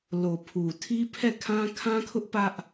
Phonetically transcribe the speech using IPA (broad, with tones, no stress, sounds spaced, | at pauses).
l o˨ pʰ u˨ tʰ i˦ pʰ ɛ˦˨ kʰ ã˦ kʰ ã˦ kʰ ʊ˦ ʔ p ä˦ ʔ